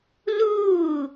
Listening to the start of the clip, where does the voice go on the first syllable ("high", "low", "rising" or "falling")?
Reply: falling